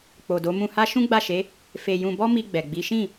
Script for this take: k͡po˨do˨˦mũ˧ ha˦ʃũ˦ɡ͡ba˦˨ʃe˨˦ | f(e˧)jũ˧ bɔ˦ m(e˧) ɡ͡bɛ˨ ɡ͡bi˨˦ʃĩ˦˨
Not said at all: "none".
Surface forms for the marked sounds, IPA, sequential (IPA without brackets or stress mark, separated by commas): e˧, i˧